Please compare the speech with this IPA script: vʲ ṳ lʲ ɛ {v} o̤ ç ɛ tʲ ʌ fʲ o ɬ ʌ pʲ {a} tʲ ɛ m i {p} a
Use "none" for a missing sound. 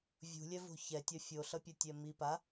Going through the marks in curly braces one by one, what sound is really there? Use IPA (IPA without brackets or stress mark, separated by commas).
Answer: v, ʌ, p